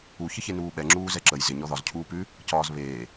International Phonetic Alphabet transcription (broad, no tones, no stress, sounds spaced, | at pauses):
u ç ə ç e n uː ɓ ɛ ŋ͡ǁ uː z ɛ ǁ ə j z ɪ ɲ ɔ ð ɒ z cʰ uː p ʉ | c ɒː z β eː